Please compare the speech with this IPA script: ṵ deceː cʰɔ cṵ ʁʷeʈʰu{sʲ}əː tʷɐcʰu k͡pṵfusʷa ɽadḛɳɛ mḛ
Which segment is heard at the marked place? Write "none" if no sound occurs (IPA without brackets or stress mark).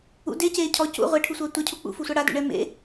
sʷ